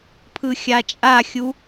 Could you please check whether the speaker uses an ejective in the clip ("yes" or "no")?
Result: yes